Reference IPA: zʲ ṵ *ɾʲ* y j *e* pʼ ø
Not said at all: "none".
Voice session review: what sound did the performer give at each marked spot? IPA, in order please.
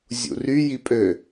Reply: r, i

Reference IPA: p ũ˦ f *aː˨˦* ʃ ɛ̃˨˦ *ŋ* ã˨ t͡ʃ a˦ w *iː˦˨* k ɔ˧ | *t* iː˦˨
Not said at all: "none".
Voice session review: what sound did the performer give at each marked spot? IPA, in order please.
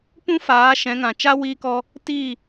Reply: aː˨˦, ŋ, iː˧, t

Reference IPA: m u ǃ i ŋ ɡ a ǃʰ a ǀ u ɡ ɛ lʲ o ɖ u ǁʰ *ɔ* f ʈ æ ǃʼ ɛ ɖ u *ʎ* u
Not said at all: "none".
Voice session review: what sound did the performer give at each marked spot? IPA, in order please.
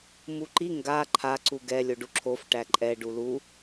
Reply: o, l

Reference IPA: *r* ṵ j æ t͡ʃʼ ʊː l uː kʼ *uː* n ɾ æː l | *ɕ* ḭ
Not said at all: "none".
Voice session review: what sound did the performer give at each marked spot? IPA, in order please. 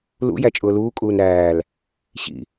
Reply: l, uː, ɕ

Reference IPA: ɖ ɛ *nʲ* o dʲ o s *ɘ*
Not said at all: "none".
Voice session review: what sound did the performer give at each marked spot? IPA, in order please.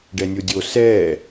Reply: nʲ, ɛ

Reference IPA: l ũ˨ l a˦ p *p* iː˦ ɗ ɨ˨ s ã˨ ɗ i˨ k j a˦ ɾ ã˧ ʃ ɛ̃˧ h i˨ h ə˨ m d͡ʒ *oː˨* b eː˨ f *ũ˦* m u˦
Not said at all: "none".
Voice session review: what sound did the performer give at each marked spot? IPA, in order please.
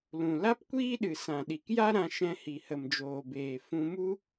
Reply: kʷ, oː˨, ũ˧

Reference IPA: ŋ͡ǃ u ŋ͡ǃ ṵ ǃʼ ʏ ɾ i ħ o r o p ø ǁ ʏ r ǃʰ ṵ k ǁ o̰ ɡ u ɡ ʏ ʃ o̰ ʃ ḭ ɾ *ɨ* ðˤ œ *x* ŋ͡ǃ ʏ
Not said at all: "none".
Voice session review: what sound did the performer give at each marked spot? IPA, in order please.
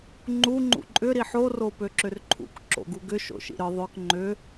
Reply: ɨ, k

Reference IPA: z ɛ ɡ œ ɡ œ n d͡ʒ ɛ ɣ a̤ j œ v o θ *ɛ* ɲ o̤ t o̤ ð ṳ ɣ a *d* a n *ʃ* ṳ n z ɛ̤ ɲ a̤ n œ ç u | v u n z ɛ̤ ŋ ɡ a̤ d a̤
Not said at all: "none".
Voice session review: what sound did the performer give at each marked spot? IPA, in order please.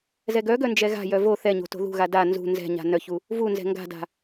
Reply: ɛ, d, z

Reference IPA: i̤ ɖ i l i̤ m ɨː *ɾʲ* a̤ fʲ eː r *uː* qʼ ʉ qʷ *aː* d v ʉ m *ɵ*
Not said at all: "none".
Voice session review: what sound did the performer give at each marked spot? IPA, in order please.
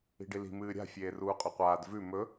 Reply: ɾʲ, uː, aː, ɵ

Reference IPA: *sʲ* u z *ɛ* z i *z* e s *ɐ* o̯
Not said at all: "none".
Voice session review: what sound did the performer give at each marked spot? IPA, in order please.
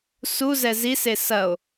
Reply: s, ɛ, s, ɐ

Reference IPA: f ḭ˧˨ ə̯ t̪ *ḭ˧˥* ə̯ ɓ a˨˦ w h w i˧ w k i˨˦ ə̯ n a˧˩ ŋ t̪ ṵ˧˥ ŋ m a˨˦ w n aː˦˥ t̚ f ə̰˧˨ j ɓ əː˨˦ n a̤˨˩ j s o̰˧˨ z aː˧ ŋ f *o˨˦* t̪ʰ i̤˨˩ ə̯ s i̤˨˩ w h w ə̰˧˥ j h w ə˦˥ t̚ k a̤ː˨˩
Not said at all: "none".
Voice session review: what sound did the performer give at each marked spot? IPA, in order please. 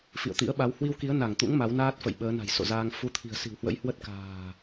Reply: ḭ˧˥, u˨˦

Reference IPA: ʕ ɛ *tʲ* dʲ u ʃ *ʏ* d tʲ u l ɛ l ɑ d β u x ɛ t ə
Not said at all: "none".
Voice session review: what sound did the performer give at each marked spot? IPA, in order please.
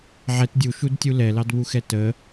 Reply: t, u

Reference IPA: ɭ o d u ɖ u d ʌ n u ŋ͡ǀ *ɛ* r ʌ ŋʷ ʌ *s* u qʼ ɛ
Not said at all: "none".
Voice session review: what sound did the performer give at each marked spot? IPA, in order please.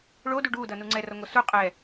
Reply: ɛ, s

